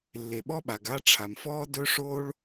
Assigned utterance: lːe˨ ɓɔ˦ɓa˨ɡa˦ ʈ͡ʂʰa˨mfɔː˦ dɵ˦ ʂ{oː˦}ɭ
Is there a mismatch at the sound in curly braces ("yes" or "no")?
no